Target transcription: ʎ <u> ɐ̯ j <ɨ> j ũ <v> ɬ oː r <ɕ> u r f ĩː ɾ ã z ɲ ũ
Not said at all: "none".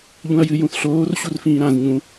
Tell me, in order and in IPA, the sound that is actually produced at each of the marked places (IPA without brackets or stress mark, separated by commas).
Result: ũ, ɨ, θ, ɕ